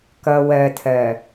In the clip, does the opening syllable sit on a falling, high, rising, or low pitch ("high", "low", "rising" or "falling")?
low